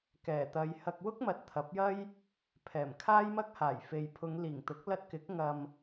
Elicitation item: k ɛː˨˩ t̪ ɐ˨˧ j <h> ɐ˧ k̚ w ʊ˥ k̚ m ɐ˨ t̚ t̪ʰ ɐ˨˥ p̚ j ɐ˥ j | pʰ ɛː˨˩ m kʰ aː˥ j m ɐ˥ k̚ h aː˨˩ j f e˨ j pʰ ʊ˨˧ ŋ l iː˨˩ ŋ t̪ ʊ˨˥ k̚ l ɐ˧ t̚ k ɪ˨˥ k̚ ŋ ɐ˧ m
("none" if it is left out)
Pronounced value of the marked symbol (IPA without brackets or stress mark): h